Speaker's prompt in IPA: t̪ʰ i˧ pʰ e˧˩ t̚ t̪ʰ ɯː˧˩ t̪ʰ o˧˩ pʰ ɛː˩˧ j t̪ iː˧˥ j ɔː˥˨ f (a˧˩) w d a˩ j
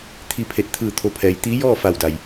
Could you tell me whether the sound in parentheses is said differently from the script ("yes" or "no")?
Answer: no